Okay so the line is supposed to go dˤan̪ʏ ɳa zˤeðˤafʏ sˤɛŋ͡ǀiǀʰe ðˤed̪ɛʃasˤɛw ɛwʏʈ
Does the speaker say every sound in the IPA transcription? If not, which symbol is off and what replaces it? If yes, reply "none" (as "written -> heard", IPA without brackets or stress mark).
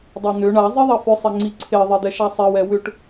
none